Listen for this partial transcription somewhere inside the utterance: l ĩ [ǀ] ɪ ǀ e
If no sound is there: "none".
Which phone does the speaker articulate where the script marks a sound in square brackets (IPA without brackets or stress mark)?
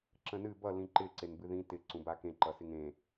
ǃ